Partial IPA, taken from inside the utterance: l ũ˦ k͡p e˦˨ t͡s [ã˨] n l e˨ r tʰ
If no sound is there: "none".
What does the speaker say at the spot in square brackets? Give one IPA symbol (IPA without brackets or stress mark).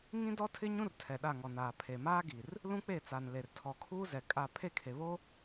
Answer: a˨